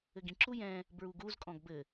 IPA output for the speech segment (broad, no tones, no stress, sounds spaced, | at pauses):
ɘ ɡ ĩ ǁ u j ɛ̃ | b ɹ u ɡ u z kʼ ɔ̃ ɡ b ɘ